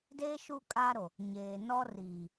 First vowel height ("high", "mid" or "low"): mid